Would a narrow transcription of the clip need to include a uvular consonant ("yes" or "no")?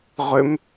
yes